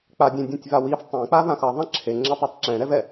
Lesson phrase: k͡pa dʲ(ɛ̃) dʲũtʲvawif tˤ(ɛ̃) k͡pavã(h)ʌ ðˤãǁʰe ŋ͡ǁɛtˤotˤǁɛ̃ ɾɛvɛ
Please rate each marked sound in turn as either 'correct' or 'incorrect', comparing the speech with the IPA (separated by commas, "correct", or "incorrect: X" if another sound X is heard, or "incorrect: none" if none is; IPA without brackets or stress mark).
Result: incorrect: ẽ, incorrect: ẽ, incorrect: x